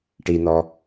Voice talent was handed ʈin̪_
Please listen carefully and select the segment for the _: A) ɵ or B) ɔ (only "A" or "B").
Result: B